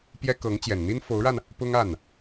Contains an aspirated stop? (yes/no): no